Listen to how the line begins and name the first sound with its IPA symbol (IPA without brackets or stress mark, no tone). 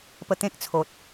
p